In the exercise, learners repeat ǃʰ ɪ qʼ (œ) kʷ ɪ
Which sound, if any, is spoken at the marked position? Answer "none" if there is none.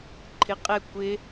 ɛ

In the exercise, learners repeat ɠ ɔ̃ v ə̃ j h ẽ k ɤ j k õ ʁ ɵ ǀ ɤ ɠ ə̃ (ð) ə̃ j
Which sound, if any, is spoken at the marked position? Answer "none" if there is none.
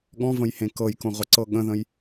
ð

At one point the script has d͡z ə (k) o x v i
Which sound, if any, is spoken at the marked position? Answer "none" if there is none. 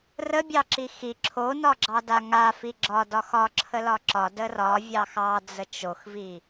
t͡ʃ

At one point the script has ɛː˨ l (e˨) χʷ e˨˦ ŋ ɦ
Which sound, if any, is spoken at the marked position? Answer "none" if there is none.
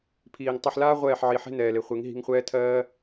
e˨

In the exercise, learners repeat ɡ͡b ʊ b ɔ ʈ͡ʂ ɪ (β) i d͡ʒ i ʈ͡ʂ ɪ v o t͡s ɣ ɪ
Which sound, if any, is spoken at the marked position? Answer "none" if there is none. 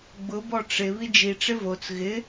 β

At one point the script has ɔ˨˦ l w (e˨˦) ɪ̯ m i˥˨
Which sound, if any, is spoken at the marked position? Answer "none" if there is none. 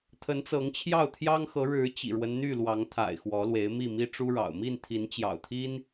e˨˦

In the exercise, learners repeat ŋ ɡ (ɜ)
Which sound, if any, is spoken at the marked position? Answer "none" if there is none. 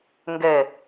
ɛ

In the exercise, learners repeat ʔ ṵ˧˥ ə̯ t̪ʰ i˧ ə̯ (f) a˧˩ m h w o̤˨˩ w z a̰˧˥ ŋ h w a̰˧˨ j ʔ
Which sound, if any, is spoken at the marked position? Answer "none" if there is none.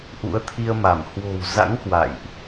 m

